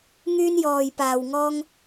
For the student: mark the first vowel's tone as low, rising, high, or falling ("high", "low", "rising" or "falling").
high